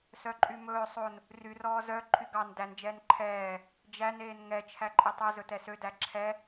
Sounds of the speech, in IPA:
sœǃʼymɵː sˤon | ryrɔː zœ ǃʰyɡɑn dænd͡ʒɛːn ǃʰɛː | d͡ʒæneːn ŋɛ t͡ʃʰæǃʼitˤɛ zɵtɛsødæ ǁʰɛ

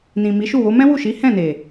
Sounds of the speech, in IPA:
nĩ˨mi˨˦ʃu˦˨wo˨˦ mɛ̃˦wu˦˨ʃi˨˦ hɛ̃˦˨ne˨

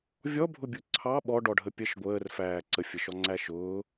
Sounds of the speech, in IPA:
vʲɔbʱʊbʲʊ ǀʰɑ ɓɔɖɔɖʱə pʲəʃ ɡʷəːrfæː ǀəfʲəʃɔŋ͡ǀæ ʃʊː

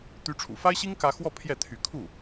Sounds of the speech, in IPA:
t̪y˧˥ʈ͡ʂʰṵ˨˩fa˥ɪ̯ɕi˥ŋ kä˥ xwɔ˥˧ pʰjɛ˥˩t̪ʰy˧˥ kʰu˥˩

